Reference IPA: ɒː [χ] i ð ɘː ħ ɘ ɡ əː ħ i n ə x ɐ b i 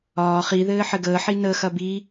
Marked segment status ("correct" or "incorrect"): correct